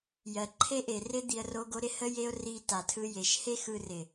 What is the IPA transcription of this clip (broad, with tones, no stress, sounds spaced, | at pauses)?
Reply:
j ɜ˨ ǃʰ e˦ ʔ e˨ r ɪ˦ d̪ i˧ ə̯ r o˦ ɡ o˦ ɾ ɪ˧ h ə˦ j e˦ ʊ̯ r i˧ t a˨ tʰ ɯ˦ j e˨ ʃ h e˦ x ɯ˧ r ɪ˨